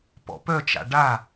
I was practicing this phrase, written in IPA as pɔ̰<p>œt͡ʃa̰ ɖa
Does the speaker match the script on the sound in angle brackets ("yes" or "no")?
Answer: yes